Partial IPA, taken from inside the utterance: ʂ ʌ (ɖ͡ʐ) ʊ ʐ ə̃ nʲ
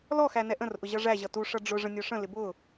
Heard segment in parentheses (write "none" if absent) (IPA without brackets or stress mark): ɖ͡ʐ